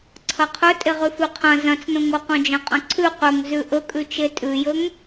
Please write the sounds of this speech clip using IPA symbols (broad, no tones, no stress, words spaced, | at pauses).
ǀʰɐqʰɵ tʼeʁʉfʉqʰɐ̃ zɐ̃t͡snõŋoqõ d͡ʒɐ̃qʼɐ̃ǀʰʉ qɵŋzʉ ʔɵkʼʉt͡ʃe tʼʉjɵŋ